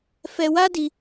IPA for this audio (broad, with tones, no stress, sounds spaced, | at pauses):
f ɛ˧ w a˦ d i˧